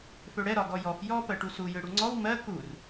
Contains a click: yes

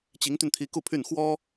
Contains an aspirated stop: yes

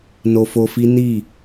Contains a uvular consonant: no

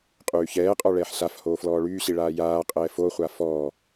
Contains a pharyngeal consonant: yes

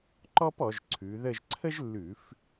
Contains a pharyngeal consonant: no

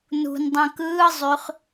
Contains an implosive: no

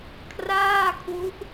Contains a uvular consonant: no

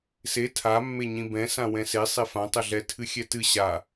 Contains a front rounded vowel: no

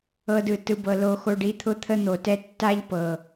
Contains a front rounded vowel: no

